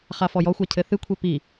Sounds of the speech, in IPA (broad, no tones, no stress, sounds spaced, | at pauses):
χ a f ɔ j ɔ xʷ a cʰ ɘ θ ɨ kʷʰ e p i